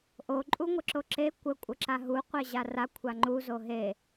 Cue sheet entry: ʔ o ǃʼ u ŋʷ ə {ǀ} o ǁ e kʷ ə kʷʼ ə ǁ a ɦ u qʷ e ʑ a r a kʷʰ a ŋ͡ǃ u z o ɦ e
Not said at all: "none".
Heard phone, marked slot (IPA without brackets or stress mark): ǁ